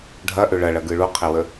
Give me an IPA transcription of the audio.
ɖʱɐʔʏ ɭɐɭɐɡɯ ɭuqʰewə

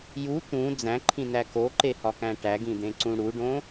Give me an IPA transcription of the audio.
ju t̪ũ d͡zæ̃ǃʰĩnæ koǃehɒkæ̃ ʈæɡĩd̪ẽǀũ ɽuɖõ

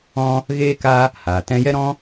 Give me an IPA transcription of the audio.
ɔ̃˦ | ɣeː˦ka˦ | haː˨ tɛ̃˧jɛ˦ɾɔ̃˦

